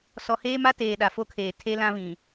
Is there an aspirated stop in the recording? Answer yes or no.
yes